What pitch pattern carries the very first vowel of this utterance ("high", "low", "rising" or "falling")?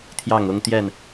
falling